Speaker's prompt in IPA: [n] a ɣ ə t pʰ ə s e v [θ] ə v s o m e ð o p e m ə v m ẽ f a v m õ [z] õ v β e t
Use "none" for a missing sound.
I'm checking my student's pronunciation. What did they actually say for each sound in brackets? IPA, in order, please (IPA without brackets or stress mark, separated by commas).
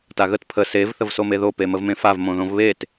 t, θ, ð